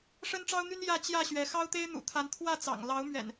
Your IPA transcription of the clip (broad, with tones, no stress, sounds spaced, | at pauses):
ʂ ə˦ n ʈ͡ʂ ɑ˦ ʊ̯ n̪ y˦ n j ä˥˨ t͡ɕ j ä˥˨ ɕ ɥ ɛ˨˦ x ɑ˦ ʊ̯ t̪ e˦ ɪ̯ n̪ ṵ˨˩ t̪ʰ a˨˦ n t̪ʰ w ä˥˨ t͡s ɑ̰˨˩ ŋ l ɑ˨˦ ʊ̯ m ɥ ɛ̰˨˩ n